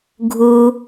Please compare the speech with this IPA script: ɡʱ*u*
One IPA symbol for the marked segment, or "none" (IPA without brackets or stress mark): u